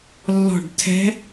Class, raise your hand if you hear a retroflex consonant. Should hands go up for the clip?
yes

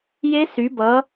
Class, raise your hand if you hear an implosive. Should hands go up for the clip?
no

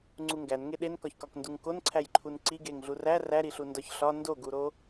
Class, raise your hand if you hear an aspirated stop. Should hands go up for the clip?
yes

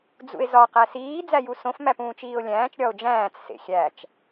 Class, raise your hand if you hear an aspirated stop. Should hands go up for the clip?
no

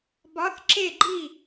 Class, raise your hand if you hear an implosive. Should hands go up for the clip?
no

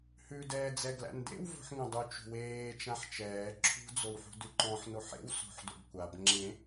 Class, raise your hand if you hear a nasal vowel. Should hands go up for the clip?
yes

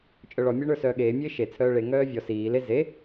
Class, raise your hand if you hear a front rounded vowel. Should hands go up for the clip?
yes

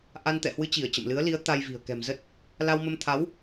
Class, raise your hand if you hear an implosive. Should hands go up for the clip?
no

